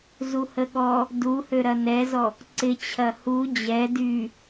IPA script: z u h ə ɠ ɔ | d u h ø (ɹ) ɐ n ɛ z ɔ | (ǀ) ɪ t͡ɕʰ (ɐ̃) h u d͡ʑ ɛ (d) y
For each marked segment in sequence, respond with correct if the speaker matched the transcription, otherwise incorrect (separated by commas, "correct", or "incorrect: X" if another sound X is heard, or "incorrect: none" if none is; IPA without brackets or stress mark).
incorrect: ɾ, correct, incorrect: ɐ, correct